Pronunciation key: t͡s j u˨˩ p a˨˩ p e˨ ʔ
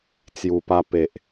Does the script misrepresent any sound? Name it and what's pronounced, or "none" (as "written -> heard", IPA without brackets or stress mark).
a˨˩ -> a˧